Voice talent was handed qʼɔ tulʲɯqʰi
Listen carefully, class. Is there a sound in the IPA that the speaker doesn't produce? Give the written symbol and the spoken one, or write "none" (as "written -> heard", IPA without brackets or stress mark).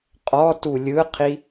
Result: none